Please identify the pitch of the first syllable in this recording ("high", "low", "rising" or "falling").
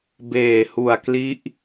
low